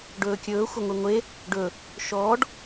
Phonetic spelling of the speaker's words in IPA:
ɖ ɵː kʲ ɵː xʷ ɐ ŋʷ i ŋʷ e | ɖ ɵ | ʃ ɔː ɖ

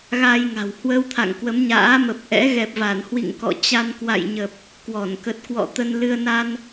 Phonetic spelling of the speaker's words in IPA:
ɣ a˧ j ŋ a̤˨˩ w h w ə˧ w t̪ʰ a̰˧˨ ŋ k w ə˨˦ m ɲ a̰ː˧˥ m ə˨˩ p̚ ʔ ɛ̰˧˥ ɣ ɛ˨˩ p̚ v a˧˩ n h w ḭ˧˨ ŋ k ɔ̰˧˨ t͡ɕ a˧ n k w a̰˧˨ j ɲ ə˨˩ p̚ | k w ɔ˧˩ n k ə˨˩ t̚ k w ɔ̰˧˨ t̪ ə˧ n l ɨ˧ ə̯ n a˧ n

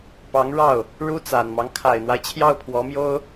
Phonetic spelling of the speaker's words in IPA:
p ɑ˧˥ ŋ ɻ ɑ˥˩ ʊ̯ | ɻ u˥ t͡s a˨˩ n m ɑ˦ ŋ kʰ a˨˩ ɪ̯ n̪ w a˦ ɪ̯ t͡ɕʰ j ɑ˥˩ ʊ̯ pʰ w ɔ˧˥ m j o˥ ʊ̯

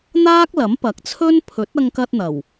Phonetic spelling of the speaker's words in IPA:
n̪ aː˥ k̚ l ɐ˨˥ m p ɐ˨ k̚ t͡sʰ ɵ˥ n pʰ ɵ˨˥ t̚ ɐ˧ ŋ k ɐ˧ t̚ n̪ ɐ˨˩ w

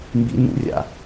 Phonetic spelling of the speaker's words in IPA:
m b ḭ n ṵ rʲ a̰

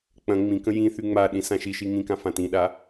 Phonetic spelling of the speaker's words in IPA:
k͡p ɐ̃ ŋ͡m ĩ k ə̃ j ĩ θ y ŋ͡m a ɗ ĩ s ã ʃ i ʃ i ŋ ĩ k ã f ã t ĩ ɗ a

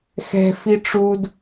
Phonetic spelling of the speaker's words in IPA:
x ɛ̤ f i ʈ͡ʂ u d

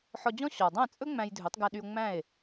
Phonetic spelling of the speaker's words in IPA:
ħ ɔ˧ d͡ʑ ɔ̃˥ ɕ ɔ˩ dˤ æ̃˥˩ t͡sʼ ɵ˥ ŋ͡m æ̃˧ j dʱ ɵ˩˥ tˤ ɡ æ˧ ɗ y˧ o̯ ŋ͡m æ̃˥˩ e̯

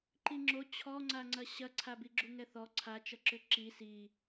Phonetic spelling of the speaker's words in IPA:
ǃ i ŋ͡ǁ o t͡ɕʰ ɔ ŋ͡ǀ a ŋ͡ǀ ɐ ɕ ɐ ǀʰ a b i ɡ͡ǁ u ŋ ɛ θ ɔ ǀʰ a t͡ʃ ɐ ǁ ʏ ǁ i s i

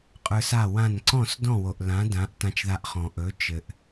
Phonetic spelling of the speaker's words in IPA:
qʼ ə˞˧ s a˥˩ w ã˥˩ n ǀ ɔ̃˥˩ s d ɔ̃˥˩ w o˩ ʔ l ã˩˥ d ã˩˥ ʔ t ã˧ t͡ʃ ð a˧ ʔ χ ɔ̃˩ ʔ ɵ˩˥ t͡ʃ ɘ˩ ʔ

